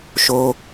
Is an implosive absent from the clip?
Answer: yes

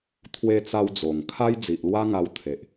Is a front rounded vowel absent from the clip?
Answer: yes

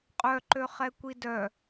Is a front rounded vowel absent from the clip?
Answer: no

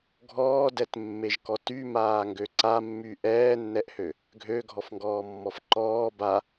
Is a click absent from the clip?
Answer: no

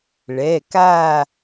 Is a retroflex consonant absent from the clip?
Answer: no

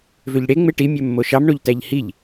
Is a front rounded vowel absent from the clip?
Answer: no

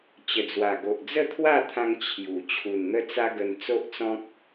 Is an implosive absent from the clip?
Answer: yes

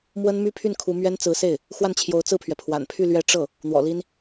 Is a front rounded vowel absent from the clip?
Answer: no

